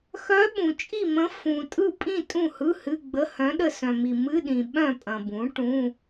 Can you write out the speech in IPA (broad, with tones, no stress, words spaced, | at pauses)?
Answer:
xœ˧˥ ɓũ˨t͡ʃʼi˥˨mə̃˧˥ fũ˨tʼɯ˥˨ pʼĩ˥˨ tʼũ˥˨hɯ˧˥˧hɨ˧˥˧ɡ͡bə˧˥˧ hœ̃˧˥ɗə˥˨ sœ̃˨mi˨ mɨ˧˥˧ɗĩ˨ ɓœ̃˥˨pʼɐ̃˨bũ˩˥ ʈũ˧˥˧